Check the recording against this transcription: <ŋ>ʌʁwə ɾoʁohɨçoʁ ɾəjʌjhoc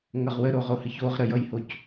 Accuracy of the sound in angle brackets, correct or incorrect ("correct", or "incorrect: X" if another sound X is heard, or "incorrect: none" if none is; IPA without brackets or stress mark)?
correct